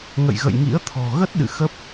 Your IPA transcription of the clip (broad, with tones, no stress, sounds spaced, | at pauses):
ŋ ə̰˧˨ j ɣ ə̰˧˨ j ŋ ḭ˧˥ ə̯ t̪ʰ ɔ̤˨˩ ɣ ə˦˥ t̚ ɗ ɨ̰˧˨ x ə˦˥ p̚